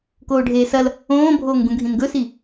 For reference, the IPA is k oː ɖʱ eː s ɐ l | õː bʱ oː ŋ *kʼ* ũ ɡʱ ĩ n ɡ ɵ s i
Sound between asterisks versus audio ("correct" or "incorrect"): incorrect